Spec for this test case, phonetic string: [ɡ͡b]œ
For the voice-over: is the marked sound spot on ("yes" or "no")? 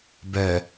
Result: no